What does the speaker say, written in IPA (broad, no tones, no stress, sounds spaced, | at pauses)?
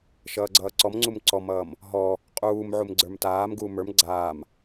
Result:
ʃ ʌː ɡ͡ǀ ʌː ǀ ɔ m ŋ͡ǀ u m ǀ ɔ m ʌː m | ɦ ɔ | qʼ uː m ʕ u m ɡ͡ǀ ə˞ m t aː m ɡ uː m ə˞ m ɡ͡ǀ aː m